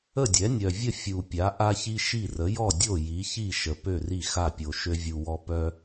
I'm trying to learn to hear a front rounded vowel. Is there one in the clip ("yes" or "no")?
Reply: yes